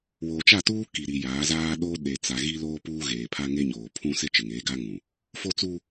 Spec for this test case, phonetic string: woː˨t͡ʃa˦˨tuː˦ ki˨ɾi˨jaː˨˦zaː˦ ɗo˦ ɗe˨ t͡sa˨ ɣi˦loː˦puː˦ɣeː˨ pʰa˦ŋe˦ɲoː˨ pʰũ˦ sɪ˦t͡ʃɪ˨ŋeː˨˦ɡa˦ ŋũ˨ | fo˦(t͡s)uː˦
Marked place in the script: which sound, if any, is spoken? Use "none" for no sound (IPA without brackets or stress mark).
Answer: t͡s